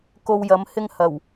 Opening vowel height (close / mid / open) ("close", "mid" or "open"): mid